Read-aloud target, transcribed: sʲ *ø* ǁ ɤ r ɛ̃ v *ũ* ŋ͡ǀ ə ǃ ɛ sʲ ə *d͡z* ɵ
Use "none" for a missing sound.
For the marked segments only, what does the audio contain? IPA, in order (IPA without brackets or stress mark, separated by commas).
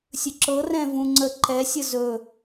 ɵ, ũ, z